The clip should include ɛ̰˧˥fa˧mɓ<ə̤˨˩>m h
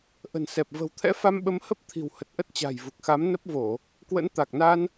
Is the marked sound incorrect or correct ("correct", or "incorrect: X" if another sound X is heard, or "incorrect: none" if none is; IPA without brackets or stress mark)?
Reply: incorrect: ə˨˦